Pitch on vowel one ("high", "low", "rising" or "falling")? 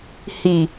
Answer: low